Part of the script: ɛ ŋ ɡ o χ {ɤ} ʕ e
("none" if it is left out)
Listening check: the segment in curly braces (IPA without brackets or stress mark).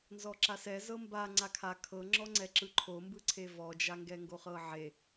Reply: ɤ